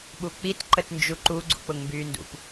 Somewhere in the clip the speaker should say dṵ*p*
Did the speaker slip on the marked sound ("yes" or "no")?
no